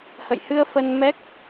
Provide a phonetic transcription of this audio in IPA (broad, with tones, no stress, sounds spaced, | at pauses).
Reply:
h ə̰˧˨ j h ɨ˧ ə̯ f ə˧ n m ɛ˦˥ k̚